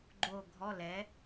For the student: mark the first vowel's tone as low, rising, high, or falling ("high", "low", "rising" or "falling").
falling